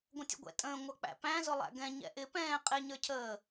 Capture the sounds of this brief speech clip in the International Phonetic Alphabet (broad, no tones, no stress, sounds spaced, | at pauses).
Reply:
ɡʷ ə̃ tʲ ə̰ ɡʷ ɛ̰ tʼ ə̃ː ŋʷ ʌ k͡p æ̰ p æ̃ z ʊ lˠ æ̰ ɡ ɛ̃ ɲ ɛ̰ ʔ ɪ p ɛ̃ː qʼ ɪ ɲ ə˞ cʰ əː